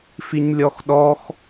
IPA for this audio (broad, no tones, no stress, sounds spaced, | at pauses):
f i ɲ lʲ ɔ x ɗ ɔ x